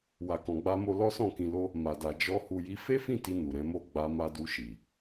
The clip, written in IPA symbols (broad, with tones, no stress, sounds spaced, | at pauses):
w a˨ k ɔ̃˨ ɡ͡b a˧ m o˧ l ɔ˦ s ɔ̃˦˨ k ĩ˧ l o˦ | m a˨ d a˨ d͡ʒ ɔ˧ h u˧ j i˦ f e˦ f ĩ˦˨ t i˧ n u˨ ɾ ɛ̃˨˦ m o˦˨ ɡ͡b a˧ m a˧ d u˧ ʃ i˨